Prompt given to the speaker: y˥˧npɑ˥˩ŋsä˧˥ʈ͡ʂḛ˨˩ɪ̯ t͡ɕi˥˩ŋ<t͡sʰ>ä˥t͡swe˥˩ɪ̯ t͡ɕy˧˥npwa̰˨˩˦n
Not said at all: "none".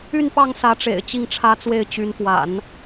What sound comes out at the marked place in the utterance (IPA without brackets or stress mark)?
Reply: ʈ͡ʂʰ